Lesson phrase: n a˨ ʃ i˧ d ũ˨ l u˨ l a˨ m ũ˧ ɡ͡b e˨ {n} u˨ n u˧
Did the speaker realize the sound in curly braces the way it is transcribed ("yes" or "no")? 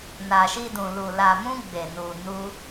yes